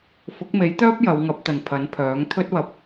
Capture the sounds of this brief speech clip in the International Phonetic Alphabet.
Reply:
f ʊ˨˥ k̚ m e˨˥ j t̪ œː˥ p̚ j ɐ˨˧ w ŋ ɐ˨˥ p̚ t̪ ɐ˨ n pʰ ɐ˨˥ n pʰ œː˨˥ ŋ t̪ʰ ɵ˥ t̚ w ɐ˧ p̚

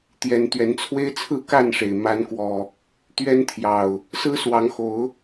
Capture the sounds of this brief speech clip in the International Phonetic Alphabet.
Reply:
t̪ j ɛ˨˦ n t̪ ɥ ɛ˨˦ n t͡sʰ w e˦ ɪ̯ t͡sʰ ɹ̩˥˨ k a˥˨ n ʂ e˩ ɪ̯ m a˨˦ n k w ɔ˨˩ | t̪ ɥ ɛ˦ n t̪ʰ j ɑ˨˩ ʊ̯ | s ɹ̩˦ s w ɑ˨˦ ŋ x o˨˦ ʊ̯

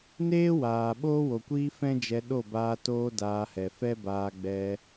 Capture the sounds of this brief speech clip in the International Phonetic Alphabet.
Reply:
n eː˦ w aː˨ ɓ oː˦ w o˨ kʷ iː˦ f ɛ̃˦ d͡ʒ ɛ˧ ɗ o˦˨ b aː˧ t oː˦ d aː˧ h ɛ˨ f ɛ˦ b aː˧ ɡ͡b ɛ˧

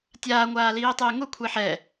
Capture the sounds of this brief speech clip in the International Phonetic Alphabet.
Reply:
tʲ aː ŋʷ aː l iː tˤ ɪː ŋ ʊ kʷʰ e ħ ɛ

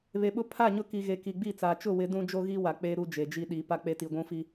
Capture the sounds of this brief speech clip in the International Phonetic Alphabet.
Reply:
β e˨ ɓ ʊ˦ pʰ a˦˨ ɲ ʊ˦ k i˨ ɣ e˨ k i˨ ɡ͡b i˦˨ t͡s aː˨ t͡ʃ ʊ˦˨ w ɪ˨˦ d ũ˦ d͡ʒ o˦ ɣ i˦ w a˨ k͡p e˦ ɾ u˦ d͡ʒ e˨ d͡ʒ i˦ ɗ i˨˦ p a˦ k͡p e˦ t i˨ ɡʷ ũ˦ f i˦

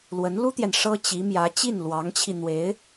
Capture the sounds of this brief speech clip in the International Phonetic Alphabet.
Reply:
l w ə˧˥ n l u˥ t̪ j ɛ˨ n ʂ ɤ˥ t͡ɕ i˧˥ m j ä˧˥ t͡ɕ i˥˩ n l w ɑ˧˥ ŋ t͡ɕʰ i˧ n̪ w e˧˥ ɪ̯

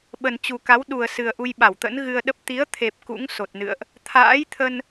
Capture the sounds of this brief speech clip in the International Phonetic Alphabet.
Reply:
ɓ ə˨˩ n t͡ɕ u˨˩ k a˨˦ w ɗ u˨˩ ə̯ s ɨ˨˩ ə̯ ʔ u˧ j ɓ a˧˩ w t̪ ə̰˧˥ n ɣ ɨ˧ ə̯ ɗ ə˦˥ p̚ t̪ i˨˦ ə̯ t̪ʰ e˨˩ p̚ k ṵ˧˥ ŋ s o˨˩ t̚ n ɨ̰˧˨ ə̯ ʔ | t̪ʰ a̰ː˧˥ j t̪ʰ ə˧ n

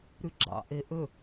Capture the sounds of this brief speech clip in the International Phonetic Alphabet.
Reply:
ɾ ʉ ɡ͡ǁ ɑ̰ ʔ e ʔ ɵ

